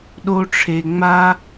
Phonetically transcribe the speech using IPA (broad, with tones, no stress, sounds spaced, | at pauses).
ɗ o˥ ʈ͡ʂʰ e˧ ŋ͡m a˥